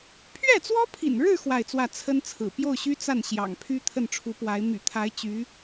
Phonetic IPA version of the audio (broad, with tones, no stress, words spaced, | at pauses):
pʰɥɛ˥˩t͡swɔ˥pʰḭ˨˩nɻɻ̩˥˧ xwa˥˧ɪ̯t͡swä˥˩ t͡sʰə˥nt͡sʰɹ̩˨˩ pjo˥˩ʊ̯ɕy˥ t͡sa˥˩n ɕjɑ̰˨˩ŋpʰy˥ t̪ʰə˥˩nʈ͡ʂʰu˧˥pwa˧˥ɪ̯ my̰˨˩t̪ʰa˧˥ɪ̯ t͡ɕy˧˥